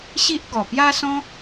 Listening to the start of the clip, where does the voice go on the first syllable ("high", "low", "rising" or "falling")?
high